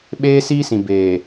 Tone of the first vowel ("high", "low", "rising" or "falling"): high